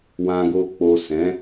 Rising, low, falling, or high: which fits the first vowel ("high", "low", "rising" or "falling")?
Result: low